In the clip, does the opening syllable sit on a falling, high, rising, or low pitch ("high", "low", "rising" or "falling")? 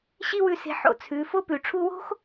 high